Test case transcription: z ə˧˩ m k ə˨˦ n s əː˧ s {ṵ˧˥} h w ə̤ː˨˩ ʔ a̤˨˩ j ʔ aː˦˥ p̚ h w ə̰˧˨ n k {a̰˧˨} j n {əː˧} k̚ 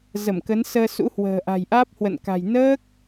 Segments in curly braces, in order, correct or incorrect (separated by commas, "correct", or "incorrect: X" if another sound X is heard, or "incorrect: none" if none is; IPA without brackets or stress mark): correct, incorrect: a̤˨˩, incorrect: əː˦˥